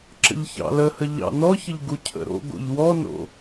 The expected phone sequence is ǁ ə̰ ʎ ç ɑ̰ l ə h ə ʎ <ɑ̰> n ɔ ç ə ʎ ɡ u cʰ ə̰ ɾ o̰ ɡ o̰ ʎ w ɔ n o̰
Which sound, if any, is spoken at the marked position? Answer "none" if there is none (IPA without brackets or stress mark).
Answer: ɑ̰